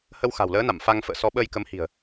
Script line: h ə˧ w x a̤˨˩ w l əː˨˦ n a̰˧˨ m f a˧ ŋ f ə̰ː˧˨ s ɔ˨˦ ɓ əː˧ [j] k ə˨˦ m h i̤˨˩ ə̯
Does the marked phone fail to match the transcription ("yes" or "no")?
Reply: no